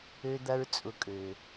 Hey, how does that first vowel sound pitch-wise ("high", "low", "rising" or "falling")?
high